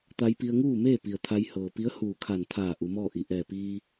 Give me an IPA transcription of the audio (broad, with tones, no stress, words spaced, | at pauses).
t̪a˧jpi˧ə̯ŋuː˥˨meː˥˨ pi˩ə̯t̪ʰa˧jhɤː˩ pi˧˥ə̯huː˧˩kʰa˧˩n t̪ʰaː˧˩ ʔu˩˧mɔː˥˨ ʔi˩ ʔɛː˧˩piː˧